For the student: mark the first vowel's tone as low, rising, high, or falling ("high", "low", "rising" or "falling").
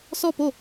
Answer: falling